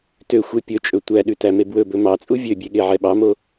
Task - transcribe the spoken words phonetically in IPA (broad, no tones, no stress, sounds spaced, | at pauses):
t ø xʷ e pʲ ɵ t͡ʃʼ ɵ tʷ æ ɗ ʉ t æ m e b w ɵ b ɵ m ɑ t͡sʼ u vʲ ø bʲ e ɠ e ʕ ɛ ɓ ɑ m o